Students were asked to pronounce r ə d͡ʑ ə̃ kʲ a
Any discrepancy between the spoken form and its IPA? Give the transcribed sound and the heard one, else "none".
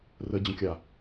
none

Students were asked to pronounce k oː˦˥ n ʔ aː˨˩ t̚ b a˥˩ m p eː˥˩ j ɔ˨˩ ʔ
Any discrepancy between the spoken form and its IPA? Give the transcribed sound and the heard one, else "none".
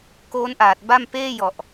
none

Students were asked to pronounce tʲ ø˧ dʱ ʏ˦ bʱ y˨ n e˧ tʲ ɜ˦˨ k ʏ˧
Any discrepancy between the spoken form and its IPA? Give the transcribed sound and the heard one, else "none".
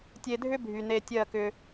ø˧ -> e˧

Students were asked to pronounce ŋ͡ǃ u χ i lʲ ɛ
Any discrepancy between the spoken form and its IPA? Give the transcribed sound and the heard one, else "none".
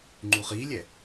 none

